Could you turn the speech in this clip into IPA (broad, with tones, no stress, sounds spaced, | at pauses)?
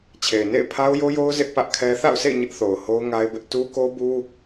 t͡ɕʰ e˨ ɪ̯ n ḛ˦˨ ɪ̯ pʰ a˦ ʊ̯ j o˦ j o˦ ʊ̯ z ɪ˦ ʔ p ä˦ ʔ kʰ ɛ˦ θ a̰˦˨ ʊ̯ sʰ ḛ˦˨ ɪ̯ ɲ ɪ˦ ʔ θ o˨ ʊ̯ h o˦ ʊ̯ ŋ a˦ ɪ̯ b ɪ˦ ʔ t u˦ k o˦ b u˦